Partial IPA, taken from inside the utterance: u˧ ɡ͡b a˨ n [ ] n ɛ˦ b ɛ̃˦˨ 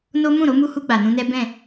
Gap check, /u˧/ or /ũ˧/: ũ˧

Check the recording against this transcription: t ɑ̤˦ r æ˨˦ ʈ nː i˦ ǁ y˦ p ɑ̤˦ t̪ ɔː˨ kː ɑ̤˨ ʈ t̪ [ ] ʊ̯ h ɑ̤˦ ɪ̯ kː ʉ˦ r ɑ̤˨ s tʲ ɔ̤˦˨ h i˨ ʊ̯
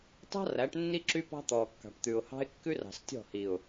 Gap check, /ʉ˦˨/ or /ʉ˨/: ʉ˨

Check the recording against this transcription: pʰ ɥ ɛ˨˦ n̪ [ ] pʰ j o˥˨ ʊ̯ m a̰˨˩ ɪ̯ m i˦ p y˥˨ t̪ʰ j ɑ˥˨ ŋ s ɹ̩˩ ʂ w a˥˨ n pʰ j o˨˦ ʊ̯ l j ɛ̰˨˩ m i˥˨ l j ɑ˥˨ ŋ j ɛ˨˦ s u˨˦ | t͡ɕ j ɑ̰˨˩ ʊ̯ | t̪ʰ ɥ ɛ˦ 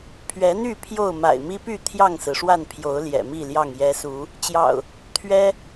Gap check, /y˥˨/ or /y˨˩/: y˥˨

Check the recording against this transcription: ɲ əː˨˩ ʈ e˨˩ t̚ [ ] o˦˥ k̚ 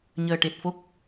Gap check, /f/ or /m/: f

